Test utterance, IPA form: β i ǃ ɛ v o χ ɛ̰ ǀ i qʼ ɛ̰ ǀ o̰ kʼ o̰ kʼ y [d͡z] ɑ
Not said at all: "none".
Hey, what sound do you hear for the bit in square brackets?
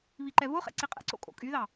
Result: ð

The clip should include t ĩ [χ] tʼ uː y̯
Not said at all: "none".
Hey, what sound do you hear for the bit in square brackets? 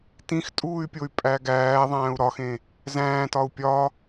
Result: x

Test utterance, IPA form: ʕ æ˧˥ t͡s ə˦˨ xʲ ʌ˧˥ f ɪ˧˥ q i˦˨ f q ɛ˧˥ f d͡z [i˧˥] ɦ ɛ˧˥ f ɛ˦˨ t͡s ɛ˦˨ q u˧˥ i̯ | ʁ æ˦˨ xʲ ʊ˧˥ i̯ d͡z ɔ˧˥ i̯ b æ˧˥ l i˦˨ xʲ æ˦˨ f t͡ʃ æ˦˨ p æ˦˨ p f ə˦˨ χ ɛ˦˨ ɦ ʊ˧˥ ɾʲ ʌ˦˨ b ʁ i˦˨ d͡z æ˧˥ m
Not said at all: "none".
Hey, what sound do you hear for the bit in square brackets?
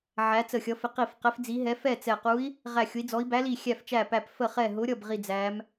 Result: i˧˥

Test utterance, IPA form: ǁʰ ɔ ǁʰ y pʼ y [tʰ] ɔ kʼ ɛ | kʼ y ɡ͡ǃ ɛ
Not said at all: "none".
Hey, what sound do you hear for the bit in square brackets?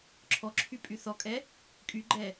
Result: θ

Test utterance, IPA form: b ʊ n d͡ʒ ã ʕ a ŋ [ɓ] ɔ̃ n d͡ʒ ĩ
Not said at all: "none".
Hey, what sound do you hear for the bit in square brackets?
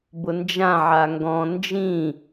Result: ɡ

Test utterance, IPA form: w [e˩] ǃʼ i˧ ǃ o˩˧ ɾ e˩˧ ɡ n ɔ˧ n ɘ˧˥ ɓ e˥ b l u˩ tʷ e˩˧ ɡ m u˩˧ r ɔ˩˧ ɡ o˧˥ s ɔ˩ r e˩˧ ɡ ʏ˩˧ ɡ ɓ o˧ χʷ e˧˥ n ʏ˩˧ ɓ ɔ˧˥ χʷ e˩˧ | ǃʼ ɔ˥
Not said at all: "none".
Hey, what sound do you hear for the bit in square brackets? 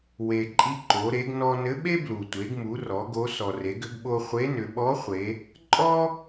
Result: e˩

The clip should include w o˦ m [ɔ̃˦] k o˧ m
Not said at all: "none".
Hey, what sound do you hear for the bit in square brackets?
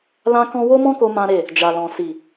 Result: ɔ̃˦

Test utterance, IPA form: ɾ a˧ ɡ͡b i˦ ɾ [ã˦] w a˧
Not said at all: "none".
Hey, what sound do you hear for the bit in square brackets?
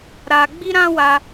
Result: ã˦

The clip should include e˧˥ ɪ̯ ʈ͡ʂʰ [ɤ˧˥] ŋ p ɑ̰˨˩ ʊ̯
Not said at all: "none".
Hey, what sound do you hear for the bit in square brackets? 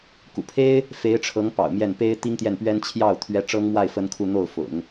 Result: ɤ˧˥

